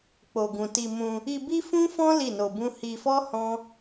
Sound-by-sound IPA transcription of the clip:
k͡po˨ɡũ˨ ti˧mũ˧ | i˧bi˦fũ˦fɔ̃˦ li˦˨no˧bũ˦ hi˧fɔ˦ hɔ̃˦

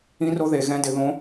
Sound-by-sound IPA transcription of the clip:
ĩ˧˥ro˧˥ ðe˨˩˦ɣɛ̃˧˥ dɪ˨˩˦ðõ˧˥

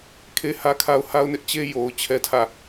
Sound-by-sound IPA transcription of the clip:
kʰe˦hä˦kʰa˦ʊ̯ ha˦ʊ̯nɪ˦ʔt͡ɕe˦ jo˨ʊ̯ t͡ɕʰɛ˦tʰä˦˨

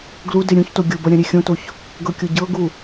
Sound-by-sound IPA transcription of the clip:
ɡlude ɾʲũçto ɡʲobʌ ɾʲãɾʲexʲõtoç | ɡɤkʲoɟɤɡu

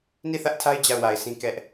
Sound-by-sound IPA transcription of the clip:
ni˦˨θä˦ʔtʰa˦ɪ̯ d͡ʑa˦˨ʊ̯wa˨ɪ̯sĩ˦ kɛ˦ʔ

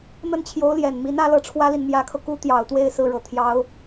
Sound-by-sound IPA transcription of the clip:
n̪ə˥˩nt͡ɕʰjo˧˥ʊ̯ljɛ˨˩nmi˧˥n ä˧˥lɤ˥˩ʈ͡ʂʰwä˥li˨n mjä˧˥kʰɤ˧ku˥ t̪jɑ˨˩ʊ̯t̪we˥˧ɪ̯ sɹ̩˥˩ɻɤ˨˩ t̪ʰjɑ˧˥ʊ̯

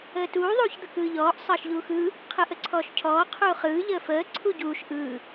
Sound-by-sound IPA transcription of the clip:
əːtuː ðˤuːçd̪əkɯːʎɔːʔ sˤʌːʃʎuːxɯː | qʰɯʔəǀʰɔːʃcʰɔː qʰuːχɯː ʎəːfəː ǀʰuɟuːʃ ʔɯː

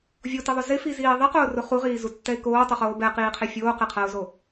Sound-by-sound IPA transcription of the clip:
vʲotɪðˤʊ zɪfiziː ðˤiqʊːrʊ χuʁiːzutːɛɪ̯ koːtˤuχoː bɛqiːqʰe fʲoːqɪqʰaʊ̯zo

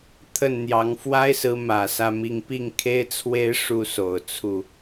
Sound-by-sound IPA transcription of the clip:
t̪ʰə˥˩nn̪jɑ˧˥ŋ fwa˥ɪ̯sɹ̩˧˥ mä˨˩sä˥˧mi˥˧ŋ pi˥˩ŋkʰe˥ɪ̯t͡sʰwe˥ɪ̯ ʂu˥so˨˩ʊ̯t͡sʰu˥˩

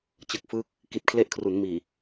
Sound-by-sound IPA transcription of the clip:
t͡ɕɯ˨˩k̚fɯː˦˥k̚ | ki˨˩t̚kʰle˦˥ʔkʰru˩˦nmiː˨˩

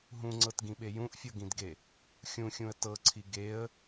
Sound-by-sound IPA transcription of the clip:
ɦũŋ͡ǀɤtɡĩɓe jũʔfʲɤɡĩdɡe | xʲũxʲũə̯ tɤǀʰi ɡeə̯

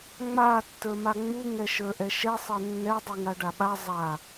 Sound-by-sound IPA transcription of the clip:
ŋ͡ma tːə˞maŋ͡mu ŋɛʃə˞ʔɛʃɛ sˤɛnːɛ dˤuŋaɖaɓa zˤa

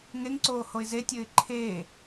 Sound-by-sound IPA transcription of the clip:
ŋeŋǀoː hoɪ̯zetʲɘːɪ̯ ǃʰeː

